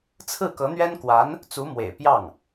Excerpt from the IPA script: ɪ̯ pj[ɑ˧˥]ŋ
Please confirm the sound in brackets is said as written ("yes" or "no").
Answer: no